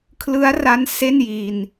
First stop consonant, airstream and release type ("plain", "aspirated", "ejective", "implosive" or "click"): aspirated